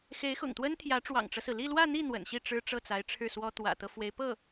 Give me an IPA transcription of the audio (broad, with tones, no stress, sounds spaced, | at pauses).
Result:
x e˧˥ ɪ̯ x ʊ̰˨˩ ŋ t̪ w ə˥ n t̪ʰ j ä˧˥ ʈ͡ʂ w ɑ̰˨˩ ŋ ʈ͡ʂ ɤ˦ s ɹ̩˩ l i˥˧ l w ä˥˧ n̪ i˥˩ n̪ w ə̰˨˩ n ɕ i˥˩ ʈ͡ʂ ɻ̩˥ ʈ͡ʂ ɤ˥˩ t͡s a˧˥ ɪ̯ ʈ͡ʂʰ ɻ̩˥˩ s w ɔ˥ t̪ w ä̰˨˩ t̪ ɤ˦ f w e˧˥ ɪ̯ p ɤ˥˩